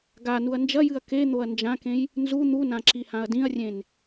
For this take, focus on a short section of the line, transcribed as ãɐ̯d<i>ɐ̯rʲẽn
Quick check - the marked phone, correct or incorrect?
incorrect